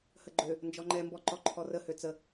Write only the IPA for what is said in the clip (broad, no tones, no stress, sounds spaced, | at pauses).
h ə ɡ͡ǃ ø | n d͡ʒ ɔ ŋ͡ǃ ɛ m b ɔ ǃ ɔ ǃʰ ɔ r ə h ø t͡s ə